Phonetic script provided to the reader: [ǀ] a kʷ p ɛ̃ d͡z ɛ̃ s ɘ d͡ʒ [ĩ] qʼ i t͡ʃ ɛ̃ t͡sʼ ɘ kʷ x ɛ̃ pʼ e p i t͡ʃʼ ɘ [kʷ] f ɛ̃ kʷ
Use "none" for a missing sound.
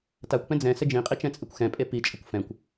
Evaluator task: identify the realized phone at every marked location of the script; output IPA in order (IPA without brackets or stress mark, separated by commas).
t, ĩ, kʷ